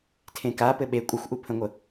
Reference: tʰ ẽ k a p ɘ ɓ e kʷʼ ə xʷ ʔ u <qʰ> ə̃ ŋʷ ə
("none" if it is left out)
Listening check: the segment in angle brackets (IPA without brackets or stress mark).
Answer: pʰ